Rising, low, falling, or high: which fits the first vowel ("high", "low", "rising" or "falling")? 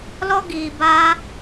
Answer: high